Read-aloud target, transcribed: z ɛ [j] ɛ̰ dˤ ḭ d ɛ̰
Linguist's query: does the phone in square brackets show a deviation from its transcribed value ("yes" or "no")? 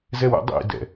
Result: yes